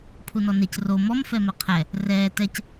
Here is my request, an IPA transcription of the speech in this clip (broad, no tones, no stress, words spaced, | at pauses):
pʰunɔnec ro mɔm fɛmɛqʰɛ | rɛː tɛc